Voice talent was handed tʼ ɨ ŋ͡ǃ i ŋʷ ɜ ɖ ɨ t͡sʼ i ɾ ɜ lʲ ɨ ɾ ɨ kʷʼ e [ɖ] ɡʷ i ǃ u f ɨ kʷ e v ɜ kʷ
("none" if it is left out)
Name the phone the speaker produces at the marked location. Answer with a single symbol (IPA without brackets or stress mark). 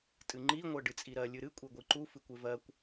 none